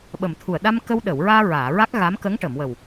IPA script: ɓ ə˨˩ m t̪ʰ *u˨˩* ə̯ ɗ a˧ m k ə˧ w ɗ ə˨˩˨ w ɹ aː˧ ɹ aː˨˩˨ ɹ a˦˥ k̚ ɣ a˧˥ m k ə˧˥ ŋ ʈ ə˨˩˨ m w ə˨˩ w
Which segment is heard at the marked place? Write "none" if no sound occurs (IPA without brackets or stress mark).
u˨˩